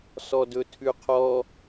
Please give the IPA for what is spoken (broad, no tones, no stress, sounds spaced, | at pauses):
s ɔ d ɵ tʰ ʉ qʰ ɔ